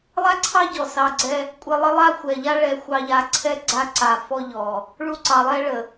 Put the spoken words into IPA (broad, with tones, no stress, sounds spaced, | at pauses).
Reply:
lˠ a˦ ǀʰ ɑ˦ ɟ ɔ˨ s ɑ˧ ɡ͡ǀ ɛ˦ | kʷʼ ə˧ lˠ ə˦ lˠ a˦ xʷ ɛ˨ ʎ a˦ ɭ ɛ˧ xʷ ɑ˧ ʎ a˧ ǀʰ ɛ˦ ɡ͡ǀ a˦ ǀ a˧ f ɔ˦ ʎ ɔ˨ | ɭ u˦ ǀ ɑ˧ lˠ ɛ˦ ɭ ə˨